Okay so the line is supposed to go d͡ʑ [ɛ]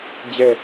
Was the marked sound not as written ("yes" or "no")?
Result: no